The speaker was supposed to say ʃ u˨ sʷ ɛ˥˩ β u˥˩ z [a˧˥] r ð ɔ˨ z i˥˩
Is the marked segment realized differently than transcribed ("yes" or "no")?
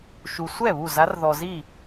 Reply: no